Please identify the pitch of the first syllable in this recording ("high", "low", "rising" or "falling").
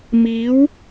rising